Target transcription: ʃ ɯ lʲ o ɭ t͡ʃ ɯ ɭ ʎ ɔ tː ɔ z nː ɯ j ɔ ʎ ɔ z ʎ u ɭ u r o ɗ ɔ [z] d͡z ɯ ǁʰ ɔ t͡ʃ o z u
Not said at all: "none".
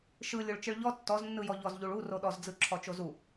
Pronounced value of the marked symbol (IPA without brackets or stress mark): z